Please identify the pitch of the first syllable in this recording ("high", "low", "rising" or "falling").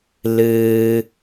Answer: low